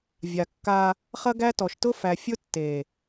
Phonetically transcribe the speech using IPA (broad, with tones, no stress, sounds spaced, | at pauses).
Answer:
vʲ a˨ kː a˦ | χ ɐ˦ ɡ æ˦ t ɔ˨ ʃ t ʊ˦ f æ˨ fʲ ʊ˦ tː e˨